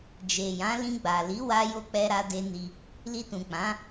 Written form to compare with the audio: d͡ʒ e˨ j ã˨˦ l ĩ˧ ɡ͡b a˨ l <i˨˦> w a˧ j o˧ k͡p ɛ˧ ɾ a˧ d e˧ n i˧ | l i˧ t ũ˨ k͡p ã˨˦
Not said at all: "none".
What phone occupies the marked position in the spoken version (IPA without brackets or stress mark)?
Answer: i˨˦